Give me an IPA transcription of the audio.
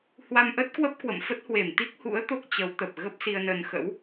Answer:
hwa˧mʔə˦˥t̚kwə˦˥p̚ kwə̰˧˨mfə˦˥t̚hwe˧˩m t̪i˦˥k̚hṵ˧˥ə̯ t̪o˦˥k̚t͡ɕə˨˦wt̪ə˨˩p̚ɣə˦˥p̚ si˧ə̯nə˧n xə̰˧˥w

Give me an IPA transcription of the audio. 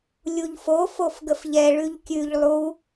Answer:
lʲuʎfo fofɡəfʎɛ ɭʉʎkʲʉʎ lˠu

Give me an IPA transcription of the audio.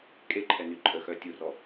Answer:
kʼeǃʰɛ nyǃʼəxœ tʲurɔ

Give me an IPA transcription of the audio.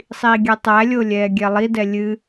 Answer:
sˤiːɡʲɛtˤælʲo lʲɛːɡʲɛlˠidɛ lʲɨ

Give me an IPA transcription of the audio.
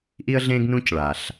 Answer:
ʔi˧ə̯ɮẽ˧ɡnũ˧c ɭa˩ɬ

